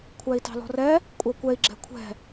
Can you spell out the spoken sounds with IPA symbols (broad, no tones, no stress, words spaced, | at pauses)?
kʷʰæi̯tɑ̤lɔ̤rɛ | kʷʼækʷɛi̯ ɡ͡ǁɛ̤kʷʰɛ̤